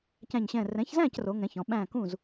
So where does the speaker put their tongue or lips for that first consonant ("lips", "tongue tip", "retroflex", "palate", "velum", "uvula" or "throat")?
palate